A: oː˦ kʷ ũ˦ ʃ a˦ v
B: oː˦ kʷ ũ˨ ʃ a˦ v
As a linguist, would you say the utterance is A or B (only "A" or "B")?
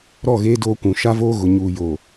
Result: B